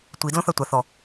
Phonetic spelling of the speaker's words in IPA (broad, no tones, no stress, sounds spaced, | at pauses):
tʷ i d l õ θ a tʷ a θ ɔ